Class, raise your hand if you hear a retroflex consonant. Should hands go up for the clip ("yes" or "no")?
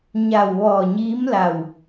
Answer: no